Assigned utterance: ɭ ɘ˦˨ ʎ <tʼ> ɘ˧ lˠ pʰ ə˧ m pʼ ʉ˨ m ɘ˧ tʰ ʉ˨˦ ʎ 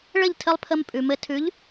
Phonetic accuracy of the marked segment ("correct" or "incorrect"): incorrect